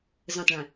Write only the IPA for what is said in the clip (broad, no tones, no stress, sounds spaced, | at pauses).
z ə̃ tˤ ɭ ĩ